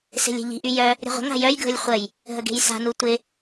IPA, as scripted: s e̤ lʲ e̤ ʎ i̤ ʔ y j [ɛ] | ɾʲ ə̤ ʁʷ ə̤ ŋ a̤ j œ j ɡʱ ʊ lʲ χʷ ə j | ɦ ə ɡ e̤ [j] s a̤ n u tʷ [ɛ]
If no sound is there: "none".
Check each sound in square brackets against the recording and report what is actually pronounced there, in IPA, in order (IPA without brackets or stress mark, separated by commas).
œ, j, ɪ